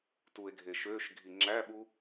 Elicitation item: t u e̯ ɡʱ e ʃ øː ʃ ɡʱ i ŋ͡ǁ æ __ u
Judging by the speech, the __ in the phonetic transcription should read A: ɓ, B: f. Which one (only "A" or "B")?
A